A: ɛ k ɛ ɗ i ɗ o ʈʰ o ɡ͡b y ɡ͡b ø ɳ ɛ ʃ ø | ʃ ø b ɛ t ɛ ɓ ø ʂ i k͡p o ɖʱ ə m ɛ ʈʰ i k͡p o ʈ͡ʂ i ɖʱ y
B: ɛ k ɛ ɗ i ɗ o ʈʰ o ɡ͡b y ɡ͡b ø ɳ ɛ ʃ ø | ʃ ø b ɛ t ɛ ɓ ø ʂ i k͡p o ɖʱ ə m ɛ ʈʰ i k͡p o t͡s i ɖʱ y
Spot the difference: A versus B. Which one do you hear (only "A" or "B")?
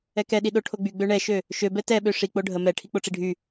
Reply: A